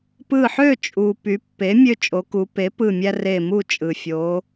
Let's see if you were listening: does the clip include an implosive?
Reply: no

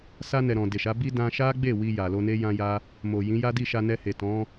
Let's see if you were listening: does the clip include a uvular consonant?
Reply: no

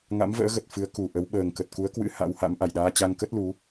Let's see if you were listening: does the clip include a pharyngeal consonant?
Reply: no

